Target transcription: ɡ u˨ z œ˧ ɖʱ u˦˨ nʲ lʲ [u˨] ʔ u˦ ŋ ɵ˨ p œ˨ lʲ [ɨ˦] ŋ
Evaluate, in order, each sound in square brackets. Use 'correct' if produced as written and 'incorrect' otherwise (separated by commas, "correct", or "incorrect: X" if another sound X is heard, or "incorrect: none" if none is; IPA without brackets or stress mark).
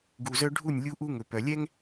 incorrect: u˦, incorrect: ɛ˦